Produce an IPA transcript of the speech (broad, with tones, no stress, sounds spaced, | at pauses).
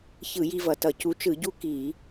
ç ɯ˧˩˧ j i˦ v ʌ˨˦ t ʌ˧˩˧ c u˨˦ t͡ʃ ɯ˧˩˧ ɟ u˦ k i˧˩˧